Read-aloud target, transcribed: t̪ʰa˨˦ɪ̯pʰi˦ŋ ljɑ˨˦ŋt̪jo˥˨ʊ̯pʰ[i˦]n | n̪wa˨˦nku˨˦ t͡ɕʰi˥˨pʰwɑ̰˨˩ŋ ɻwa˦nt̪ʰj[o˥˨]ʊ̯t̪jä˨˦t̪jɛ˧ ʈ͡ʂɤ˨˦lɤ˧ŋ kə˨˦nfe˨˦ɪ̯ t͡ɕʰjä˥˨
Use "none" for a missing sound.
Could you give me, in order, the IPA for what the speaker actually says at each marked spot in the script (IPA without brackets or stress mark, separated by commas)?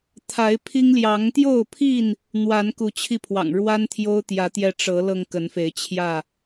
i˥˨, o˦